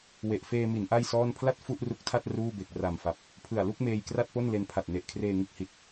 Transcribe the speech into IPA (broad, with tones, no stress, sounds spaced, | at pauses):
w e˨˩ ʔ f eː˧ m i˩˦ n ʔ a˥˩ j s ɔː˥˩ n pʰ l a˥˩ t̚ f u˥˩ ʔ r u˦˥ k̚ tʰ a˥˩ t̚ r uː˥˩ b e˨˩ k̚ r a˨˩ m f a˨˩ p̚ | pʰ ɯ˨˩ a̯ l u˥˩ k̚ m eː˧ j k r a˥˩ t̚ p o˥˩ n l e˧ n pʰ a˨˩ t̚ n e˨˩ ʔ kʰ r eː˧ ŋ ɯ˦˥ k̚ h i˨˩ t̚